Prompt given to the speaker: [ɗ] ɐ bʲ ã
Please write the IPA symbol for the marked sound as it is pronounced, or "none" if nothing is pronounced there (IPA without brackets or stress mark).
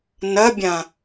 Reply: n